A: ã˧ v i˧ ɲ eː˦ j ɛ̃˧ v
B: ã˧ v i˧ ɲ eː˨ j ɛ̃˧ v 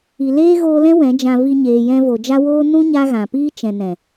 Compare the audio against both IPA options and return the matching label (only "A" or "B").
B